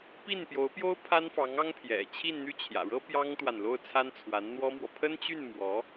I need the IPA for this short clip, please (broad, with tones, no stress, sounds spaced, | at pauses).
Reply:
p i˥˩ n p j o˧˥ ʊ̯ p j o˥ ʊ̯ pʰ a˥ n f ɑ˧˥ ŋ ɑ˥ ŋ pʰ j ɛ̰˨˩ t͡ɕʰ i˥˧ n n̪ y˥˩ t͡ɕʰ j ä̰˨˩ ɻ ɤ˥ p j ɑ˥ ŋ t̪ w a˨ n l o˥˩ ʊ̯ t͡sʰ a˥ n t͡sʰ w a˧˥ n n̪ w ɔ˥ m w ɔ˨ pʰ ə˥ n t͡ɕ y˥˩ n m w ɔ˧˥